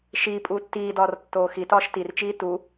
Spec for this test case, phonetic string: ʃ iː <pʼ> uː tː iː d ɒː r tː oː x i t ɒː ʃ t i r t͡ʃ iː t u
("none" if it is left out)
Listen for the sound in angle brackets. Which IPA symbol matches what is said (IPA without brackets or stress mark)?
pʼ